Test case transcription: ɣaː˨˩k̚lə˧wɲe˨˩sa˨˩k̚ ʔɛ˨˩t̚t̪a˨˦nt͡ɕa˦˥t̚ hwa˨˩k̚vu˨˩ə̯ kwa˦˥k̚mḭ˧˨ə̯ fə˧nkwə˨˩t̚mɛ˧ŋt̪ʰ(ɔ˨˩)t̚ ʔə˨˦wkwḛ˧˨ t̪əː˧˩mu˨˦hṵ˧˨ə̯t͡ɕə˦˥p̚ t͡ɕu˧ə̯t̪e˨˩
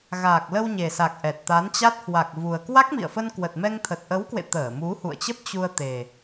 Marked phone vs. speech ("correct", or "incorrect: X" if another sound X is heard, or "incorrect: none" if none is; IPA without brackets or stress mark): incorrect: ə˨˩